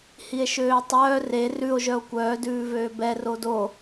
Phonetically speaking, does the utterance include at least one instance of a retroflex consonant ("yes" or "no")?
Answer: no